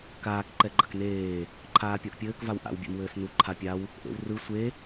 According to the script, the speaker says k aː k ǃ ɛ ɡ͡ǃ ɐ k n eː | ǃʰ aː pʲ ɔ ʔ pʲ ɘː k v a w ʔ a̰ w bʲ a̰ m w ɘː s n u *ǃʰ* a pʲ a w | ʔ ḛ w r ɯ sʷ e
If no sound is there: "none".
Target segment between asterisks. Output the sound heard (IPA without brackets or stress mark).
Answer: ǃʰ